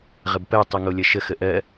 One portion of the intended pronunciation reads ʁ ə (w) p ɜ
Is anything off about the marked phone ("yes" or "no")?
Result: yes